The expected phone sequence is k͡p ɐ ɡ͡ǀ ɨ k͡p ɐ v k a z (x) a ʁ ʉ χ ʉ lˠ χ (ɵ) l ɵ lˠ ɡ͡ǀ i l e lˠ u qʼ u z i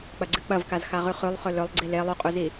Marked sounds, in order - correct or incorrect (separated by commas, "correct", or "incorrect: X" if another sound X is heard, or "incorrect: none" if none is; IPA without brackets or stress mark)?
correct, correct